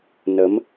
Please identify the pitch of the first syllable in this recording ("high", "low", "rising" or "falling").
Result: rising